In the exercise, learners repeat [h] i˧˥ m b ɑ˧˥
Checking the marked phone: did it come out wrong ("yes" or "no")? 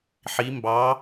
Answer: yes